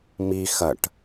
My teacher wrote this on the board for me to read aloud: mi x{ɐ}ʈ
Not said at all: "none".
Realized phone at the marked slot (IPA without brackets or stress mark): ɐ